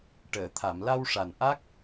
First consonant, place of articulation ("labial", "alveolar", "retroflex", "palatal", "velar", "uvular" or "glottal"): retroflex